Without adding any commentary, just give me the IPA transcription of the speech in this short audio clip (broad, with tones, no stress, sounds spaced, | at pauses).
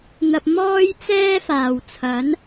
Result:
n̪ ɐ˨ p̚ m ɔː˥ j t͡s ɛː˥ f aː˨ w t͡sʰ ɐ˨˥ n